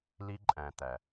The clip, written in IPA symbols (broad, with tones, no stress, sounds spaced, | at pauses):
l i˦ ǃʼ æ̃˨ t̪ æ˨